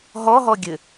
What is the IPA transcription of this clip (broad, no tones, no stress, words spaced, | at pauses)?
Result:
ɦɔɦɔ ɡʲɘ